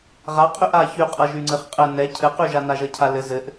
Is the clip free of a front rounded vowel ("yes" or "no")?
no